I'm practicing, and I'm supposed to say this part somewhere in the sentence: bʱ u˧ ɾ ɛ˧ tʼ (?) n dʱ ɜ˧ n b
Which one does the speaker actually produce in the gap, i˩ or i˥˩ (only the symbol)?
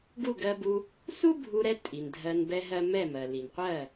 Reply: i˩